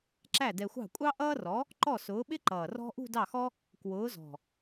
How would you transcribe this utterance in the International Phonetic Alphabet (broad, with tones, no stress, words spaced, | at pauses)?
ǁæ˥˩dɛ˧xʷɑ̤˥˩kʷʼɑ˥ ʔʌː˥ rɔ˨˥ | ǃɔ˥˩sʊː˨˥ɓɪ˥ǃʌː˨˩ rɔ̤˥ ʔṳ˥˧dɑ˥˩xɔ˥ | kwʊː˨˥zɔ̤˨˩